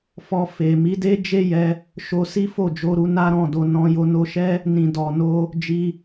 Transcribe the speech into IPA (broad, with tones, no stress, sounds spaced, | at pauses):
f ɔ˧ f e˨ m i˨˦ d e˦ d͡ʒ e˦ j ɛ˧ | ʃ o˧ s i˦ f o˦˨ d͡ʒ o˧ ɾ u˧ n a˦ ɾ ɔ̃˦˨ d o˧ n ɔ̃˧ j o˧ n o˧ ʃ ɛ˦ | n ĩ˨ d ɔ˨ n o˧ | d͡ʒ i˧